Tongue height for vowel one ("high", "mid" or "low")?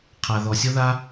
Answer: low